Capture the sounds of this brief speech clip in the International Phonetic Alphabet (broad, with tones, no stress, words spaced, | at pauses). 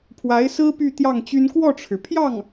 pʰwa˧˥ɪ̯ sɹ̩˥ py˥˧t̪jɑ˥˩ŋt͡ɕy˥n kwɔ˥˩ʈ͡ʂʰɻ̩˩pʰjɑ˥˩ŋ